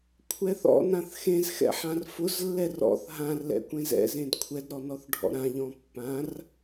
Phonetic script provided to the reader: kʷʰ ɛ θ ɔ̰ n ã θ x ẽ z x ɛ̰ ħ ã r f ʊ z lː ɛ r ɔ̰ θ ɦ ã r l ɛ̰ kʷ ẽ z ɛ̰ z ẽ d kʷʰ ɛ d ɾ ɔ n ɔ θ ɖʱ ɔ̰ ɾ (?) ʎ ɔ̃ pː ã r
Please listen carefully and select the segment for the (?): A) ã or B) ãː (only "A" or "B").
A